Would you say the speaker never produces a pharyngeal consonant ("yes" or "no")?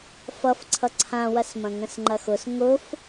yes